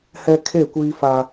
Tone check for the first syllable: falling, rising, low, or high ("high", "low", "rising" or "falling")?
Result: high